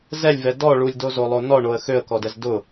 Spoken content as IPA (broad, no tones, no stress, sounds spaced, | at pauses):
z ɛ lʲ v ɛ d ɔ ɭ u lʲ d o z o lˠ o n ɔ ɳ o ə̯ x ø ə̯ k ɔ d ɛ z d ʊ